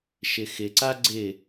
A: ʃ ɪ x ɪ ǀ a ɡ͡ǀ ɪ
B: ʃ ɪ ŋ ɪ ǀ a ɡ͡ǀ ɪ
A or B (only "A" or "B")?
A